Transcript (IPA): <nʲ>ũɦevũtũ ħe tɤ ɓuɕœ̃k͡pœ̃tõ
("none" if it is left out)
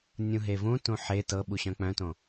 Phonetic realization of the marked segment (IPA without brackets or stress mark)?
nʲ